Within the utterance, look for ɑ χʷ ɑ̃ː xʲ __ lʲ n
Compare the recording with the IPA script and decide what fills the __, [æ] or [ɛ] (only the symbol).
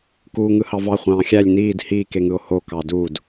æ